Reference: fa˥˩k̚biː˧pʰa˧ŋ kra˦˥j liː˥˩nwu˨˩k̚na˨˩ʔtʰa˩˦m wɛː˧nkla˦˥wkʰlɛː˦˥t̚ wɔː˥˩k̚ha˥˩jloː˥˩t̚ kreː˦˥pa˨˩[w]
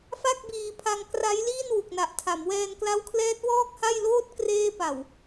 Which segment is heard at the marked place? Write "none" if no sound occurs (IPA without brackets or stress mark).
w